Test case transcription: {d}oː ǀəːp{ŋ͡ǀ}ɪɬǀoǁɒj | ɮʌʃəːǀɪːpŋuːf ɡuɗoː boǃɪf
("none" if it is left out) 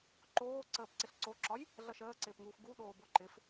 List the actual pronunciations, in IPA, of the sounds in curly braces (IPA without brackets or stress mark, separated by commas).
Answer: ǃ, ǀ